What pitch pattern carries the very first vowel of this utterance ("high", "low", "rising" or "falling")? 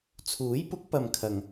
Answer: rising